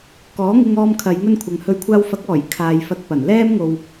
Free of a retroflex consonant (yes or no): yes